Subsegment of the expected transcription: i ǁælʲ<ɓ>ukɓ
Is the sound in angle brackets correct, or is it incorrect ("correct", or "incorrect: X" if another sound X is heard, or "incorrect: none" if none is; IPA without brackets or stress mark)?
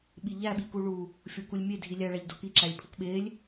incorrect: pʰ